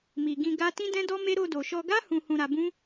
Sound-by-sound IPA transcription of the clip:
m i˨ ɡ ĩ˧ ɡ a˦ t ĩ˦ d ɛ̃˦ d ɔ˦ m e˦ ɾ o˧ d o˨ ʃ ɔ˧ ɡ a˦ h ũ˧ h ũ˧ ɾ a˧ b ũ˦

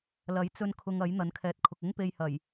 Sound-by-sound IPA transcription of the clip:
l ɐ˨˥ j t͡s ɵ˧ n kʰ ʊ˧ ŋ ɐ˨˥ j n̪ ɐ˨˥ n kʰ ɛː˨ t̚ kʰ ʊ˨ k̚ ʊ˥ ŋ p e˧ j h ɐ˨˩ j

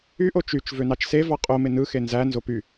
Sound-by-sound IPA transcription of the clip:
y ʔ o t͡ʃ y t͡ʃ v ø n ɑ t͡ʃ s e v ɑ qʼ o m e n ɯ x e n z æ n z o p y

